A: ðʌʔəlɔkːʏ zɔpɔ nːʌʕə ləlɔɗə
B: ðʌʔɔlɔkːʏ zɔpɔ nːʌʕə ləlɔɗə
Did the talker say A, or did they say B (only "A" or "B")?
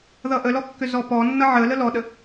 A